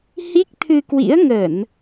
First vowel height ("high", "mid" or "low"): high